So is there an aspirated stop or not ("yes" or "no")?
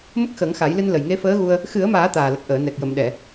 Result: no